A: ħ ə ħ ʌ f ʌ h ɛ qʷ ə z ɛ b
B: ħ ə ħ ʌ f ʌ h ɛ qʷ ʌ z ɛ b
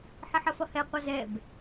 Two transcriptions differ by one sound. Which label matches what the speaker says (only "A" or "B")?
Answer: B